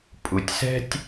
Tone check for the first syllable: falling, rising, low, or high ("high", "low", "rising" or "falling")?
low